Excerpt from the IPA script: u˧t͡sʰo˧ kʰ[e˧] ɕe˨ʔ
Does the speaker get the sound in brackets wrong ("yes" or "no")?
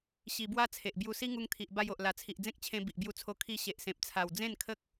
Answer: yes